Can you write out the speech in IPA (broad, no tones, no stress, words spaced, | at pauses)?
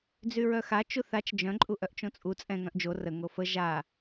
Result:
d͡zyɹœxa t͡ʃuθat͡ʃ d͡ʒœ̃ ǃʼuʔœʔt͡ʃõt͡sʼu t͡sʼɛ̃ ŋœ̃ʔd͡ʒo rə ŋofə ʒa